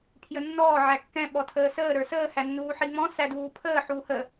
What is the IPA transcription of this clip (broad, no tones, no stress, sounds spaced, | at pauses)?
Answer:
pʰ j ə nː ɔː ʕ æ kː ɛ̃ ɓ ɔ tʰ əː s əː ɾ ə˞ s əː h æ nː uː ħ i ŋ͡m ɔ̃ s æ d uː pʰ əː ħ uː h ə